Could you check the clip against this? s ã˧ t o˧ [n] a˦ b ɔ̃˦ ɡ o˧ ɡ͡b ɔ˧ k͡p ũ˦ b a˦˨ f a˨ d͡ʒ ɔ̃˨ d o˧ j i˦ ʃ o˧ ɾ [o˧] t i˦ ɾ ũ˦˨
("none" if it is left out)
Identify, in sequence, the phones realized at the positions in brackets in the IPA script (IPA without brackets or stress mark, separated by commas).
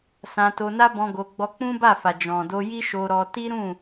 n, ɔ˧